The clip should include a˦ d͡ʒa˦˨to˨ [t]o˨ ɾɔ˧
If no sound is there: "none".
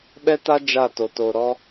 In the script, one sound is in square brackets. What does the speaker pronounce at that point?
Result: t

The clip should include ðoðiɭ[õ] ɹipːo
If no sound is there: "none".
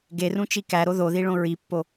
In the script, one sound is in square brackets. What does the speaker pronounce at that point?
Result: õ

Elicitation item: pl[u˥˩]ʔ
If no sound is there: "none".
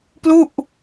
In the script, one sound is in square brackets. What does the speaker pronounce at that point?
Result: u˥˩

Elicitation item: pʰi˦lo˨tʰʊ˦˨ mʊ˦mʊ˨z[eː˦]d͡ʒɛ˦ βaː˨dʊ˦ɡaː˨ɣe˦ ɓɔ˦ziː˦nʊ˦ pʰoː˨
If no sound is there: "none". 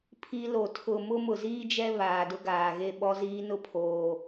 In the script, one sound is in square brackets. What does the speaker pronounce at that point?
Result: iː˦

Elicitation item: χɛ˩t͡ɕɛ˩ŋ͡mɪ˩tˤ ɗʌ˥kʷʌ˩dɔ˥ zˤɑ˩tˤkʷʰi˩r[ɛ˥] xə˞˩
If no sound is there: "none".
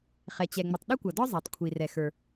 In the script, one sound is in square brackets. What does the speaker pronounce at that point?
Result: ɛ˩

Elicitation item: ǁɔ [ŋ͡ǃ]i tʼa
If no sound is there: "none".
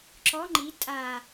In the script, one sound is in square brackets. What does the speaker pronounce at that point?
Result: ŋ͡ǃ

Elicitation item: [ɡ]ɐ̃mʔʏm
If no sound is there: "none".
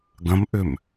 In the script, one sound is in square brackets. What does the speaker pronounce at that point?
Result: ɡ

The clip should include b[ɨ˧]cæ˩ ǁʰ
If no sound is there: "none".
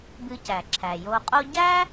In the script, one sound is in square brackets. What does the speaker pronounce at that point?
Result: ɨ˧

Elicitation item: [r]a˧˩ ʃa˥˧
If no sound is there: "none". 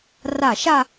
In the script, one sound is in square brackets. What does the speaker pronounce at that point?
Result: r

